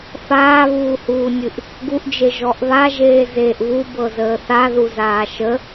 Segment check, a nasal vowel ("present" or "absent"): absent